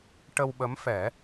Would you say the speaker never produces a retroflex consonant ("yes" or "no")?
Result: no